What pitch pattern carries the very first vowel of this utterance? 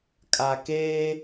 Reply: low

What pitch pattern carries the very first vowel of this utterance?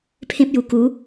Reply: high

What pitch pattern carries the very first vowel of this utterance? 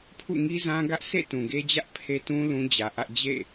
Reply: falling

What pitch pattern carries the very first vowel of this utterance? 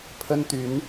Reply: high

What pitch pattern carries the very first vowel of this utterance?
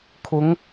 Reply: rising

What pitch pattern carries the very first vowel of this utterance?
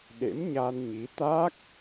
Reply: rising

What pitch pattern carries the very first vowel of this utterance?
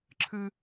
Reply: high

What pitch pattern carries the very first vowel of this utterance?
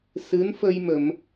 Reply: rising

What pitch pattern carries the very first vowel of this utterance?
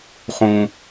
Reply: high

